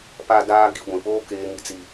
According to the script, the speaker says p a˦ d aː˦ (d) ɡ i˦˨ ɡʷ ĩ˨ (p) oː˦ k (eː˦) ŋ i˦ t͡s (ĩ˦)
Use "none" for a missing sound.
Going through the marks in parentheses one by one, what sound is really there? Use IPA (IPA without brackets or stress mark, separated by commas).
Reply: none, p, eː˦, i˦